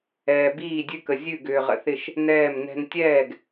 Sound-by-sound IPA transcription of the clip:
ɛː˨biː˥˩dʲʉ˦kə˨ zʲʉ˥˩ɡʏː˨ʁə̰˨θɪ˥˩ʃ | nɛː˥˩mnɛ̤˦n tʲɛː˥˩ɡ

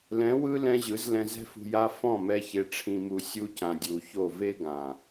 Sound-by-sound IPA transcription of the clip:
lɛ̃˨˦wɯ˦ lɛ̃˦ʑɯ˨˦z lɛ̃˧zɛ̤˦fṳ˧ ja˧ fɔ̃˦˨mɛ˧ çe˨ʈ͡ʂʰĩ˨mu˨ sʲu˦cã˨dʲu˨ço˦˨ ve˦ɡã˨

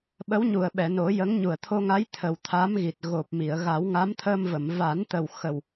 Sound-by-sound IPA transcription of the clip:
ɓə˧˥wɲu˨˩ə̯ɓɛ˨˩˨no˨˩˦ jə˧˥ŋɲu˨˩ə̯ t̪ʰo˧ŋa˧˥j t̪ʰə˨˩w t̪ʰa˧˥mɣi˨˩t̚ ɣo˨˩p̚mi˨˩˨ə̯ ɣa˨˩˦w ŋa˧˥mt̪ʰəː˧mvə˨˩˨m va˨˩˦nt̪ə˨˩w xə˨˩w

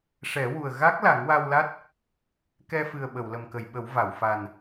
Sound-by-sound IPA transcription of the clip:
ʂɛ˨˩˦wu˨˩ə̯ ɣa˦˥k̚ la˨˩˦ŋwa˧wla˦˥t̚ | kɛ˧fɨ˨˩ə̯ ɓə˨˩˨wlə˨˩mkə˨˩˨jɓə˨˩˦w va˨˩˨w fa˨˩n

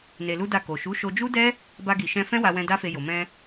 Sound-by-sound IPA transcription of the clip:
ne˧lu˦da˦˨ ko˨ʃu˨˦ ʃo˧d͡ʒu˦dɛ˦ | ba˧ɡi˨ʃɛ̃˧ fɛ̃˦wa˧wɛ̃˧ da˦fe˧jo˨ mɛ̃˧

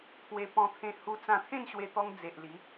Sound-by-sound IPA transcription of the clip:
t̪ʰwe˧ pɔ̃˧t̪ʰẽ˧ hu˧t͡sã˧ t̪ʰẽ˥˧nɕwe˧t̪ɔ˧ŋ d͡ze˨ʔli˨˦

